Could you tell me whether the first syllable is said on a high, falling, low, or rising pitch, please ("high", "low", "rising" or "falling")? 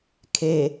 low